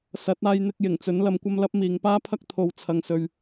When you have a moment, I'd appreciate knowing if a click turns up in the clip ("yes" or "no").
no